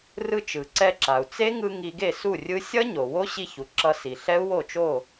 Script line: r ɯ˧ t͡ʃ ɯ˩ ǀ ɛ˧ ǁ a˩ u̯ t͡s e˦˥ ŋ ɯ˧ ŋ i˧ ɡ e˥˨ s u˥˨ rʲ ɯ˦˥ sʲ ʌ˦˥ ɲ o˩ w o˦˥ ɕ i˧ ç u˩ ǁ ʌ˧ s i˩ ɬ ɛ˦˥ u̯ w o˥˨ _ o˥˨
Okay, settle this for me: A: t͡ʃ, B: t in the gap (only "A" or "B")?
A